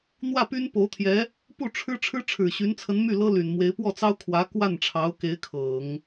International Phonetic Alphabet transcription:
n̪wä˥˩py˥npo˧˥ʊ̯t̪ʰjɛ˧˥ | pu˥˩ʈ͡ʂʰɻ̩˥ ʈ͡ʂʰɻ̩˥ʈ͡ʂʰɻ̩˨˩ɕy˧˥nt͡sʰə˧˥n my˥˩lɤ˥ly˨˩nmwe˧˥ɪ̯ pwɔ˥˩t͡sɑ˥ʊ̯kʰwä˧˥ kwa˥˩nʈ͡ʂʰɑ˧˥ʊ̯ke˧˥ɪ̯ kʰɤ˨˩˦ŋ

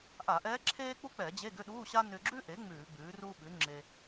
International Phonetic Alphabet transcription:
ʔa˧˩˧ʔɛː˧˥ ǁʰeː˥k͡pu˥k͡pɛ˧˩˧ d͡ʑe˧˥˧ɡʏ˧˥˧ɗuː˧˥˧ɕa˥ nʏ˧ɡ͡ǁʉ˥ʔe˩˥ ŋ͡mʉː˧˩˧ɡ͡bʉː˩˥ruː˥ ɓʉ˩˥ ŋ͡ǁe˧

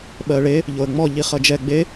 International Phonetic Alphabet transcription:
ɓɜɭe | ʎoə̯ŋ͡mɔ ʎiχʌd͡ʒɛ ɡ͡be

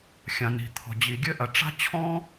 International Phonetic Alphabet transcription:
xʲã˩ni̤˩ t̪ʰɔ̤˩d͡ʑi˩ɡʲɘ˥ ʔɐ˩ ʈ͡ʂa̤˥t͡ɕʰɔ̃˥

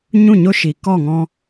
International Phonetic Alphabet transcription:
ɲũ˦˨ɲo˦ʃi˨ kɔ˦˨ŋɔ̃˧

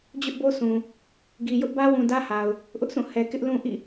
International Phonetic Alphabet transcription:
d͡ʑʊ˦ʔbo˦sʰũ˨ | ɡi˨jʊ˦ʔbä˦wũ˨ dä˦ha˨ʊ̯ | ʔʊ˦ʔsʰũ˦˨ hɛ˨kɪ˦ʔ lũ˦ʔḭ˦˨

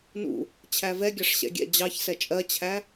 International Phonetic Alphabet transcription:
nṵ | t͡ɕʰævɛɡʲɑʂ ɕɛ̰ɡʲɛ̰ d͡ʑɑçsɛ t͡ʃʼɜt͡ɕʰæ

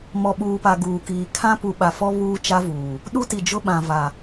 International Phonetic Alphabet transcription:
mɔ˨ɓuː˨pa˨ ɡuː˨kiː˨ kʰã˦pu˨ɓa˨fɔ˦ βuː˦t͡ʃa˦vuː˨ | ɗu˦ti˨d͡ʒʊ˦ɓã˨ va˨

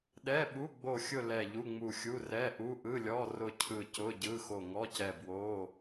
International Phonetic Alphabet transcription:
ɗɛ˧˥˧ɓu˧˥˧ ɡ͡bo˦˨xʲʊ˦˨ lɛ˦˨ʎu˧˥˧ŋ͡mu˦˨xʲu˧˥˧ rɛ˧˥˧ʔu˧˥˧ʔɯ˧˥˧lʲɔ˧˥˧ rʊ˦˨ cʰɯ˦˨cʊ˧˥˧ɟɯ˧˥˧ xo˦˨ŋɔ˧˥˧cɛ˦˨ bwo˧˥˧

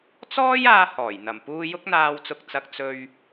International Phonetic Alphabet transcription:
t͡sɔː˥jaː˧ hɔː˨˩j n̪ɐ˨˩mpuː˧jʊ˥k̚ n̪aː˨wt͡sʊ˨k̚t͡sɐ˨k̚ t͡sɵ˧ɥ

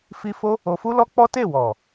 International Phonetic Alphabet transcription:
fi˦ fo˦ | o˧fu˦lɔ˦ k͡pɔ˦te˦˨wɔ˨

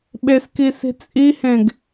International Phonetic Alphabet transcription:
ɓeskisi̤ t͡sʼihẽɡ

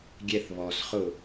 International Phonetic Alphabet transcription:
ɡʲɛθ βɔsχʊ

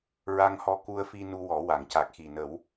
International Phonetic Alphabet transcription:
ɹa˧ŋhɔ˧ ku˧ə̯fi˧ nu˧wɔ˨˩˦wa˨˩˨ŋ ca˨˩k̚xi˨˩nə˨˩˦w

